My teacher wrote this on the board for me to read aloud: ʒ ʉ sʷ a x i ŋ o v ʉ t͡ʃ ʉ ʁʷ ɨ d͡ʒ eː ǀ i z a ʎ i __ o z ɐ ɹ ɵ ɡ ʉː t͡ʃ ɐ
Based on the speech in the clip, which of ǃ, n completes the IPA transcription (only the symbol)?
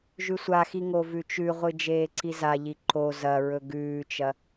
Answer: ǃ